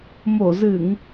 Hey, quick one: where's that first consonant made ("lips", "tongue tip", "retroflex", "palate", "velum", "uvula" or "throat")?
lips